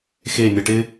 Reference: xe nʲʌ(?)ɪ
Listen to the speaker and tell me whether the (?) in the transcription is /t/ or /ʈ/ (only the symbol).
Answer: ʈ